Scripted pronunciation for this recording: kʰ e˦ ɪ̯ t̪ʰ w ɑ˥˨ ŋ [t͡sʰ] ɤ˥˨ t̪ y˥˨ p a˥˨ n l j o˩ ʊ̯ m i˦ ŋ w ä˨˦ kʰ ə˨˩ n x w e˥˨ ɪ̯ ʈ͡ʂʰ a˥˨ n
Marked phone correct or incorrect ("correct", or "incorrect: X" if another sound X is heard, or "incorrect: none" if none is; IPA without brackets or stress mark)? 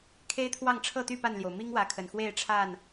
incorrect: ʈ͡ʂʰ